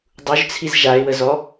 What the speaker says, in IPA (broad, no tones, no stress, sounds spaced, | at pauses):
dˤ u ʒ t͡sʰ i z ʒ a ɪ̯ w ə z ɔ